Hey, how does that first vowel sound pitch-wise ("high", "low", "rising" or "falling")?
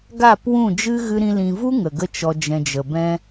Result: falling